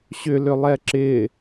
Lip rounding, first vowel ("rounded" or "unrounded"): rounded